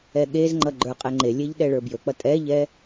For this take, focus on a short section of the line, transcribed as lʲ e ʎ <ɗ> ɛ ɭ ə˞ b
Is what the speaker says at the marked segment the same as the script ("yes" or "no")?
yes